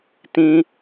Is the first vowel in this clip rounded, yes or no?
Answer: no